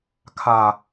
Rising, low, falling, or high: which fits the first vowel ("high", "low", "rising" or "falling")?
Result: low